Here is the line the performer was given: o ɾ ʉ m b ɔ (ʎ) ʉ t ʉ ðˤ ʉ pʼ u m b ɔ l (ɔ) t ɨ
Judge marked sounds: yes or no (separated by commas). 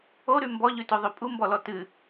yes, yes